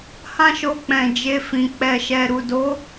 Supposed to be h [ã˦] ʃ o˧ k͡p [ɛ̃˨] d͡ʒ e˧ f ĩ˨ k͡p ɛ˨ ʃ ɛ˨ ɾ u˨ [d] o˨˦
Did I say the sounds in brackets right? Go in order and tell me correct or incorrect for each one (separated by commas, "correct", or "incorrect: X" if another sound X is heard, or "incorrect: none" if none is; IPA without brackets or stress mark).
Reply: correct, correct, correct